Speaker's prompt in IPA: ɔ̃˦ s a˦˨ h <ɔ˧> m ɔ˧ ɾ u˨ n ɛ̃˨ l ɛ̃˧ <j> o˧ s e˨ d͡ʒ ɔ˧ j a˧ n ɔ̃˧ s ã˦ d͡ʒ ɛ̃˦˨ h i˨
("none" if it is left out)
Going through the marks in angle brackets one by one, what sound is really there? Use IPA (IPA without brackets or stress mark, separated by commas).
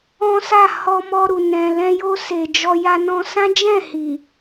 ɔ˧, j